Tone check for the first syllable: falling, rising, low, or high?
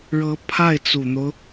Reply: rising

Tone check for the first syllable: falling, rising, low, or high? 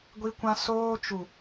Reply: high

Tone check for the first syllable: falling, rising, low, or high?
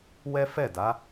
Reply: high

